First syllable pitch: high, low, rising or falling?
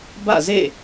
falling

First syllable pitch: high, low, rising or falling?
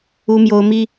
high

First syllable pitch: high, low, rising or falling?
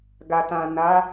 low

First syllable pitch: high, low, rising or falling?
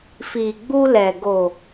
low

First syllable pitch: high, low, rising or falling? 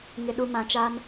low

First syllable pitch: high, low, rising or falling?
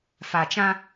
low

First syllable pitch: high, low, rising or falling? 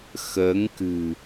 rising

